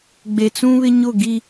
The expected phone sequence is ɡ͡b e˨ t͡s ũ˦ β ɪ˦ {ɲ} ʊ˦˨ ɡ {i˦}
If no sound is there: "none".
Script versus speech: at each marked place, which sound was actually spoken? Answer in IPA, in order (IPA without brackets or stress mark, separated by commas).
ɲ, i˦